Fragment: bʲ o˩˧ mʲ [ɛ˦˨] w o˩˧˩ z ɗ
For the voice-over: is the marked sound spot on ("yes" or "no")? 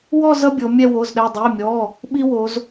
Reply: yes